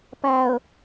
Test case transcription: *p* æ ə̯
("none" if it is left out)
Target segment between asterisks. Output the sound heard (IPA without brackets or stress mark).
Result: p